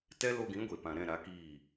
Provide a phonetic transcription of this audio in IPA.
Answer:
tɛ˦ lo˧ɡĩ˨˦ɡʷe˨pã˨ ɾɛ̃˦˨ɾa˨˦kiː˦˨

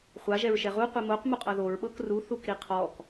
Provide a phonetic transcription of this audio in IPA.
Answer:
χʷaʒɛɹʃɛ ʁu qʷimoq muqʼɤðoɹɓɤk ru θukɾiqʰɔk

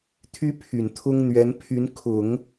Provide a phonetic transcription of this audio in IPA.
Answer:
t̪ʰy˥pʰy˨˩nt̪ʰʊ˥ŋ n̪ɥɛ˧˥npʰy˧˥n kʰʊ˨˩˦ŋ

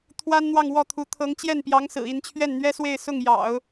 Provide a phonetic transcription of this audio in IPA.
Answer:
t̪ʰwa˥nn̪wɑ˥˧ŋ wɔ˥˩t̪ʰu˧˥ t̪ʰɤ˧˥ŋt͡ɕjɛ˥˩npjɑ˧˥ŋsɹ̩˨˩ i˥˧nt͡ɕʰɥɛ˥˩nn̪ɥɛ˥swe˥˧ɪ̯ sʊ˥˩ŋ jɑ̰˨˩˦ʊ̯

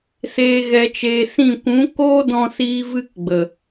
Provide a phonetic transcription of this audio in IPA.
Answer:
seː˨ɣɛ˨t͡ʃeː˨ sĩ˦˨ kʷũ˨˦koː˦dɔ̃˧siː˧ vɨ˦kɡ͡bə˨

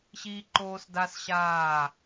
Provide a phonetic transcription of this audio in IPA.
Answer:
ɕiː˦ ǃoː˦sda˦sɕaː˦˨

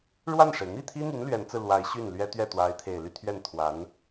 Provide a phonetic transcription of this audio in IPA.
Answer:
ɻwa˥˩nʂe˩ɪ̯ n̪i˥˩t̪ʰi˥n̪y˧˥n lɥɛ˧˥nt͡sɹ̩˧ lwa˧˥ɪ̯ ɕy˥˩nlɥɛ˥t̪ɥɛ˥˩ t̪wa˧˥ɪ̯t̪ʰe˨˩ɪ̯ly˥˧ t̪ʰɥɛ˥˩nt̪ʰwa˧˥n

